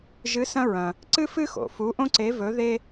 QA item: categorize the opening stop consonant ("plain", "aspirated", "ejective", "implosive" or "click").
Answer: click